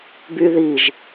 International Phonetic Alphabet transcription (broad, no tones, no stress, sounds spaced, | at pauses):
b y ð i ʒ